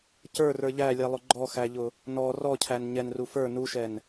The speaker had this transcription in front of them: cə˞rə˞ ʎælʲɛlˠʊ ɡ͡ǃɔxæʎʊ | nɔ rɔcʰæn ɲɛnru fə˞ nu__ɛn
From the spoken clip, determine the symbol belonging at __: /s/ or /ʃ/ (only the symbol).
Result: ʃ